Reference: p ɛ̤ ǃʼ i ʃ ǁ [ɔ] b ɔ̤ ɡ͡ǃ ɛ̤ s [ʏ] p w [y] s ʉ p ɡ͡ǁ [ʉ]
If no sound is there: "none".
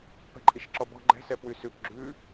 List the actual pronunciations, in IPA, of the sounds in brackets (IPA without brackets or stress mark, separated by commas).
ɔ, ɛ, y, ʉ